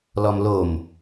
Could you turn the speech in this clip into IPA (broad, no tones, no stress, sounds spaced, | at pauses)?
l ɔ m l o m